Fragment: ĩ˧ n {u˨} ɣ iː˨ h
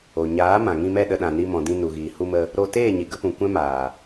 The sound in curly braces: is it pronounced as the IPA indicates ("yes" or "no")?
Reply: yes